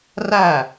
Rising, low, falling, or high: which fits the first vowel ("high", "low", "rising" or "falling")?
falling